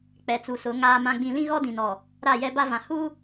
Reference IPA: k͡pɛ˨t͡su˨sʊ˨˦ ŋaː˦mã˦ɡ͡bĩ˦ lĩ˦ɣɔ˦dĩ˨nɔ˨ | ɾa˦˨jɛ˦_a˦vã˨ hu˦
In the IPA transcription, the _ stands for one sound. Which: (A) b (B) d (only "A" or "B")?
A